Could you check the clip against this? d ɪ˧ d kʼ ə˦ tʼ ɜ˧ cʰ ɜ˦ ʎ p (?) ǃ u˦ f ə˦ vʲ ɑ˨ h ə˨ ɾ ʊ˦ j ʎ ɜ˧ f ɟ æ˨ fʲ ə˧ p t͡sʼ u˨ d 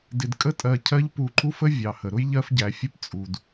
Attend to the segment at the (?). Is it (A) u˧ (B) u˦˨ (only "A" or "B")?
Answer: A